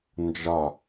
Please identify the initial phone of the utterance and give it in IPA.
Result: n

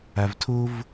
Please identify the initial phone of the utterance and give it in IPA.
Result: a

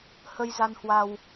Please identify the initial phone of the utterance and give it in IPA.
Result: h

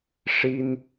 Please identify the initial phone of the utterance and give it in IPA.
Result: ʂ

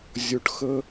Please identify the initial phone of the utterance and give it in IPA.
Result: zʲ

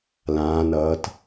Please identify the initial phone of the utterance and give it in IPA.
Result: l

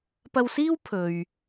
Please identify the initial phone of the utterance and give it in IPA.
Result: p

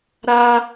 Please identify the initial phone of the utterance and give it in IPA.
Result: ɾ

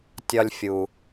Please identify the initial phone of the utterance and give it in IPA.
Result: tʲ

